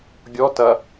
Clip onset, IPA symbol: ɡʲ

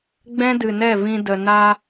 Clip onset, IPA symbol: ɡ͡b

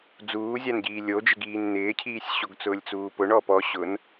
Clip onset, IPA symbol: d͡z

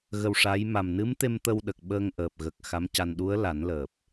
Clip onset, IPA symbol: ɣ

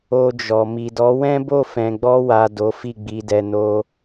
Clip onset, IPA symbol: o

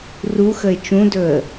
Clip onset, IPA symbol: r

